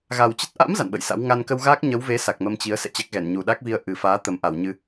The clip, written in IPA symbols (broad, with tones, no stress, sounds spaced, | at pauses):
ɣ a˨˩ w t͡ɕ ə˦˥ t̚ ʔ a̰˧˥ m z a̰˧˨ n ɓ ə̰˧˨ j s a̰˧˥ w ŋ a˧ n k ə˧ w ɣ aː˦˥ k̚ ɲ ə˨˦ w v e˨˦ s a˨˩ k̚ m ə˧ m t͡ɕ i˨˦ ə̯ s ɛ̰˧˨ t͡ɕ a˦˥ k̚ ɣ ɛ˧˩ n ɲ u˨˩ ɗ a˦˥ k̚ v i˧ ə̯ ʔ ɨ˨˩ f aː˨˦ t̪ ə˨˩ m ʔ a˧˩ w ɲ ɨ˧